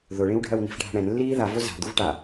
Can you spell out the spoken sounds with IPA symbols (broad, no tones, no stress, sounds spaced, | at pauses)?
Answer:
ð ʊ ɭ ĩ w ɖʱ ɜ w n i̤ f ɖʱ a̤ ɽ ɛ̃ n lː iː ð a v o z a̤ d̪ u v ʈ a